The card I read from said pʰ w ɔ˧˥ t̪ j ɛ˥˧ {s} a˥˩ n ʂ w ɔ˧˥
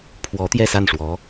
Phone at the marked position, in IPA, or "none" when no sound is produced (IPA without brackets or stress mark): s